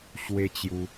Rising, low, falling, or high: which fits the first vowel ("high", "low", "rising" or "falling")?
high